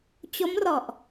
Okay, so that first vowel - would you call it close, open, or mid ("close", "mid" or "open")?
mid